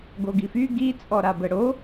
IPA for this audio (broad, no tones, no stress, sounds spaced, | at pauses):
ɡ o ɡ i f y ɡ i t͡sʼ ɔ ɾ a b ə ɽ o